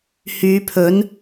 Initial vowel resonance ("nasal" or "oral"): oral